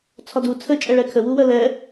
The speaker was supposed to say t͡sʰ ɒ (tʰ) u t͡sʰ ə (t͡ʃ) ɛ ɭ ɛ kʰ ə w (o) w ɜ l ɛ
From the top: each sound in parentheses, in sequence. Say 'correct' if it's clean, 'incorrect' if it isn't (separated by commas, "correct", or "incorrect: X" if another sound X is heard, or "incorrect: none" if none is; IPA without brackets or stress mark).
incorrect: d, incorrect: t͡ʃʼ, incorrect: u